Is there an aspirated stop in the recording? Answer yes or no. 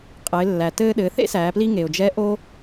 no